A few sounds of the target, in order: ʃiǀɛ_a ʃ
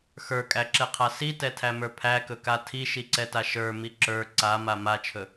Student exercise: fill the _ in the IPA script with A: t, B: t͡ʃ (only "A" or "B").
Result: A